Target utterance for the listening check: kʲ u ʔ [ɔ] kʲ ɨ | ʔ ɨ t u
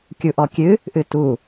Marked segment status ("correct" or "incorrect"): correct